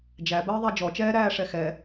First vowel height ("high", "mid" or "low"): low